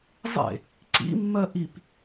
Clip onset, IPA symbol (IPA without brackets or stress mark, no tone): zˤ